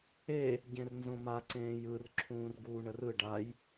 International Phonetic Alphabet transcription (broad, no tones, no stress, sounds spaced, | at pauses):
e | ɟ ẽ r n z õ m a ǀ ẽː j ɯ r ǁʰ ũː r ɡ uː ɳ ə r ɯ ɖ a j